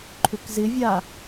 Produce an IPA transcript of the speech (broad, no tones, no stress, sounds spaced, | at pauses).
ǃʰ ʏ k z ɪ vʲ a